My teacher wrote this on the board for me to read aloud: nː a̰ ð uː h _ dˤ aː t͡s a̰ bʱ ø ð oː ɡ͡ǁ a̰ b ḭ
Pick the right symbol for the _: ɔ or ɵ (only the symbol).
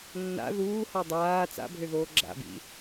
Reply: ɔ